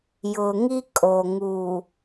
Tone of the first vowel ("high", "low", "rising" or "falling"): low